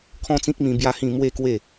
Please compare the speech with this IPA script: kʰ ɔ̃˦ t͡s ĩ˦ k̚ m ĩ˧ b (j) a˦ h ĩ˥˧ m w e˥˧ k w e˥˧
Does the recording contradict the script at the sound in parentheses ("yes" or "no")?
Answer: no